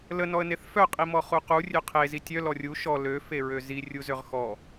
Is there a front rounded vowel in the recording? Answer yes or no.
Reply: yes